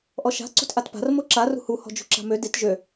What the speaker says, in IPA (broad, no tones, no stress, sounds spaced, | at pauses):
ʔ ɔ ʃ a̤ ǀ ṳ t ʔ a t p a̤ r m o ǁ a r ṳ h u h ɔ̤ d͡ʒ ṳ ǁ a̤ m ø d i t ʒ ø